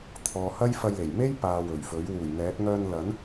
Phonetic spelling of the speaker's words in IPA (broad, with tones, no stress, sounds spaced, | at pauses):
t̪ʰ ɔː˨ h ɐ˥ j f ɐ˧ j l e˨˩ j m e˥ j p aː˨ w ɵ˨˩ ɥ f ɵ˨˥ ɥ w uː˨˩ j n̪ ɛː˨˥ t̚ ŋ œː˧ n l ɐ˨˥ n